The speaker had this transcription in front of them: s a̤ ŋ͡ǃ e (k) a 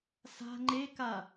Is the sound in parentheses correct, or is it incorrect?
correct